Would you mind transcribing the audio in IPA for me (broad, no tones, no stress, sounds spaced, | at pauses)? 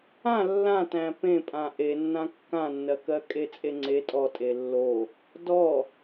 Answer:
ã lː ã t æ̃ p ẽ pʼ ã ʔ e nː ã kː ã nː ɜ k ɜ kʼ e t͡sʼ e ŋ͡ǀ e tʼ ɔ tʼ e lː o | d ɔ